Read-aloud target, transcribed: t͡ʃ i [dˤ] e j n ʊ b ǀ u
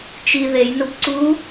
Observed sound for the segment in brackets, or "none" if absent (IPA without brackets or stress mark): ð